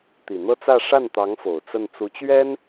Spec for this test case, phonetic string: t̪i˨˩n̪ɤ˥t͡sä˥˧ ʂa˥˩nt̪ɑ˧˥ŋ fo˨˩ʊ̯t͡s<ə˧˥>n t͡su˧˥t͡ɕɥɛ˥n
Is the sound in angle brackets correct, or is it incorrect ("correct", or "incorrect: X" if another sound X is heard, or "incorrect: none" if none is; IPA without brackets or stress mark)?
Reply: incorrect: ə˥˩